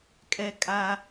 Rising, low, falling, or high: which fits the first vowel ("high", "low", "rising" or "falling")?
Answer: high